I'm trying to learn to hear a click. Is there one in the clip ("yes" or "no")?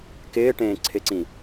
yes